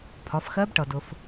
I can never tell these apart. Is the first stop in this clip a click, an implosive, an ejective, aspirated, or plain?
aspirated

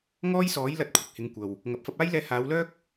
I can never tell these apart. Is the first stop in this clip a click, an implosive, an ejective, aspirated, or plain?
plain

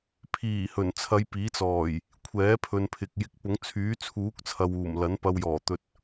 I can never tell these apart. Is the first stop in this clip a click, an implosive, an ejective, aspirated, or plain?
aspirated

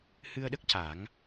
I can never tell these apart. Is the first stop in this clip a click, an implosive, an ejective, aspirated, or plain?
implosive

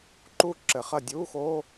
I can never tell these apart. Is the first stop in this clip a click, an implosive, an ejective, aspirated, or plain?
click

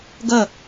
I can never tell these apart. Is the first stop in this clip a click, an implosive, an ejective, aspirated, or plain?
plain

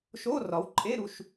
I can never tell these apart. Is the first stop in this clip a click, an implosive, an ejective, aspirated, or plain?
click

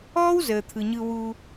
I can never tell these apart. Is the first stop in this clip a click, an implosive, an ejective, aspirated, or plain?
aspirated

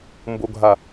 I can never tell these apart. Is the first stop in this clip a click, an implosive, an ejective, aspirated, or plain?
plain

